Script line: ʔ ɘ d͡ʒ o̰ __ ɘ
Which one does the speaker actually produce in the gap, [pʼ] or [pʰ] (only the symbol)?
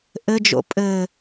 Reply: pʼ